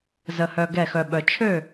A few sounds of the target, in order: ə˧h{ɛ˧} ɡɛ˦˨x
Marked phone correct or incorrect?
incorrect